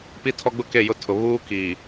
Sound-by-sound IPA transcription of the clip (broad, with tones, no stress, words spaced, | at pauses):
pi˦tʰɔ˦ɡ͡bʊ˦ ke˦˨jʊ˦tʰʊ˨ βuː˦kiː˨